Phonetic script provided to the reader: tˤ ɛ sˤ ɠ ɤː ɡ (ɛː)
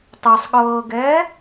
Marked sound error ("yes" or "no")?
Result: no